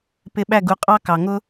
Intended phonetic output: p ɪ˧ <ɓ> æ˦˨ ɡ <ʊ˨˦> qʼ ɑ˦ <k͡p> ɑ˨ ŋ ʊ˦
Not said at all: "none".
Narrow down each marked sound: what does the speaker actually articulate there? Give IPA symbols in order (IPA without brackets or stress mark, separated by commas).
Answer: ɓ, u˨˦, k